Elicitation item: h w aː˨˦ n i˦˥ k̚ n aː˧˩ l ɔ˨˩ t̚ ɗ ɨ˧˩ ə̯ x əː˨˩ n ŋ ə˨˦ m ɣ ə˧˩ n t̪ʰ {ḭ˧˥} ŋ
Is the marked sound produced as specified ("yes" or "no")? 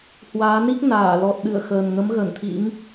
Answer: yes